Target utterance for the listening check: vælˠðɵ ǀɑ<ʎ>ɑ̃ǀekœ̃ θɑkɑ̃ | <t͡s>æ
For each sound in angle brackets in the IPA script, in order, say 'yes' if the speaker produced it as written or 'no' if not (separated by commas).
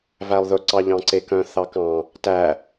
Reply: yes, no